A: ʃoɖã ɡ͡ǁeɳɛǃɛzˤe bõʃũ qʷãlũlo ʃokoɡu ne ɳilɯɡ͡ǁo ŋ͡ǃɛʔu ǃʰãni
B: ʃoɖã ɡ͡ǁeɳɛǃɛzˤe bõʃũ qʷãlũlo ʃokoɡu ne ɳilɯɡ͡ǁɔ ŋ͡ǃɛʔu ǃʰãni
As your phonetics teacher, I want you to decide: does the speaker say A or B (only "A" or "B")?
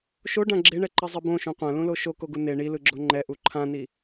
A